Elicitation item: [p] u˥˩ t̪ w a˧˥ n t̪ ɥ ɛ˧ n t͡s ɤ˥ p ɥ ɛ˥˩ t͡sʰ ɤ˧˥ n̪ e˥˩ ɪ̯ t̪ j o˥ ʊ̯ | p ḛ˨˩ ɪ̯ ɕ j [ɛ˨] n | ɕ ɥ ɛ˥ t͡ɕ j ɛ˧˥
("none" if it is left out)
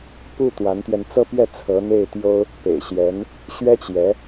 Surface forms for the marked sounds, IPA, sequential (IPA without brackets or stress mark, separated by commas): p, ɛ˧˥